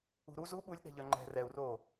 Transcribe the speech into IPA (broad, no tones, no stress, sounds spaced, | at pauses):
ṳ ɾ u z u ɓ u lʲ ɗ ɛ̤ ʎ œ ŋ͡ǃ ɛ̤ r ɛ u̯ r oː